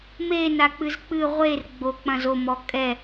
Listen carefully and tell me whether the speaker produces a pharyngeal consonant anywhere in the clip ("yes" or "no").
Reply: no